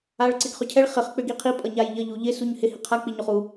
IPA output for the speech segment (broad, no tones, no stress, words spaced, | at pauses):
aɭǀɪɡχʏcʰɛɭ χɪχ k͡pʏɡiqʰi pʼʌɲajʎʌ ʎuʎɪ suɲhɪ hiqʰa k͡piɲoχu